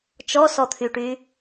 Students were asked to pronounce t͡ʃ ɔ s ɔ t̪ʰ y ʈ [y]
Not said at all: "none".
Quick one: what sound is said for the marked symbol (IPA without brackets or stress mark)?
y